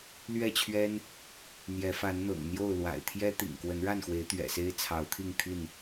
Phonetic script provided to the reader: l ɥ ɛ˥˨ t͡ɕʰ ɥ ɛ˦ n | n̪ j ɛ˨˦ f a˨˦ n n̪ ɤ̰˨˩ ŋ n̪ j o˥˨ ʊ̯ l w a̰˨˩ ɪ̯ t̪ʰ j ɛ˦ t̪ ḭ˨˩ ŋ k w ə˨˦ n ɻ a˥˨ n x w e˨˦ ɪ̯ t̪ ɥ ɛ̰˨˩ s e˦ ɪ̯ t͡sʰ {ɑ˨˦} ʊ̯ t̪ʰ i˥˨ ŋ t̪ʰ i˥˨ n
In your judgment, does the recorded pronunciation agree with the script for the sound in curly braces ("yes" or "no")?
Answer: yes